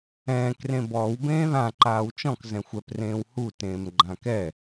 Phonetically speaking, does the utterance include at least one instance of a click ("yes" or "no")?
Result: yes